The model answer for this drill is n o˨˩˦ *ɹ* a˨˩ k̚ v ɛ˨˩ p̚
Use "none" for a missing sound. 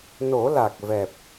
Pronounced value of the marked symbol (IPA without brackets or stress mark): l